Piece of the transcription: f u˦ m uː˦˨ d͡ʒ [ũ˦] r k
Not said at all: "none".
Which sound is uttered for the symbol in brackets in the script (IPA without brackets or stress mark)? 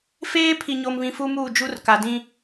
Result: u˦